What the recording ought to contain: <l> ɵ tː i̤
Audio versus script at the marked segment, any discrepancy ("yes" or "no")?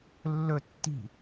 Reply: yes